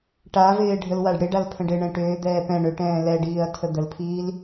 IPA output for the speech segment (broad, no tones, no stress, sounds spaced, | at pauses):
ʈ a v ɪː ɖʱ ə l w a ɖ ɽ ɪ ɖ a l pʰ ə̃ ɖ ɪ ɳ ɛ̃ ʈ ʏː d̪ ɛː p ɛ̃ ɳ ʏ ʈ ɛ̃ː l ɛ ɖ iː ɐ̯ tʰ ə d̪ ə l pʰ iː l